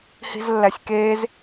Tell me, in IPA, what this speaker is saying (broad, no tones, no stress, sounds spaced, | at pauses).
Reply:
h i̤ z lː æ sʲ k eː z